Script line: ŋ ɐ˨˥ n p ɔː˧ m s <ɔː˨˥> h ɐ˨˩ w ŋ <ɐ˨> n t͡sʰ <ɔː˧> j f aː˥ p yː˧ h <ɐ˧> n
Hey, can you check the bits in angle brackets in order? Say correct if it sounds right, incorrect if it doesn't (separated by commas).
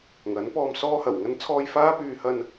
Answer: incorrect, incorrect, correct, correct